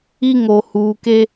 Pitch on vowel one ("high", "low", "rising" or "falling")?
high